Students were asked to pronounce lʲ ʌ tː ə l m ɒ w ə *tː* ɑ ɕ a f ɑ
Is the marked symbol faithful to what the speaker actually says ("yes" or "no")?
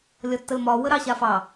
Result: no